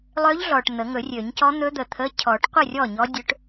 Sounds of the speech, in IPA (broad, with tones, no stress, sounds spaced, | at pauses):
lˠ ø˧˥ ʎ ɮ ɔ˨ ʈ n̪ ə˨˩˦ ŋ ɵ˨˩˦ rʲ ø˨˩˦ ɲ c ɔ˧˥ n̪ ɵ˧˥ d̪ ə˨ t̪ʰ ə˧˥˧ cʰ ɔ˨˩˦ ʈ qʷ ə˥˩ rʲ ɔ˥˩ ɲ ɔ˧˥ dʲ ɵ˧˥ ʈ